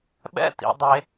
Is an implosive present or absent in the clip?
present